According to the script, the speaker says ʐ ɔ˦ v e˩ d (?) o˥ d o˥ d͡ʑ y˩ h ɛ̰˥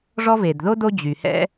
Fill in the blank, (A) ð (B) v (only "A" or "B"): A